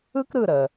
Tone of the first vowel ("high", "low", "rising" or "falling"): high